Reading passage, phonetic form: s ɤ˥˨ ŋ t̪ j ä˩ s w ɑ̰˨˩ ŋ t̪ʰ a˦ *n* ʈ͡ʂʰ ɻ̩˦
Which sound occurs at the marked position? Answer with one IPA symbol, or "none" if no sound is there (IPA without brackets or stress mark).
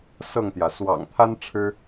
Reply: n